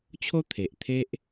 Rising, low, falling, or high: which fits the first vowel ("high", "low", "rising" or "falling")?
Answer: high